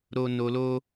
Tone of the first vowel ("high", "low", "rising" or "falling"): high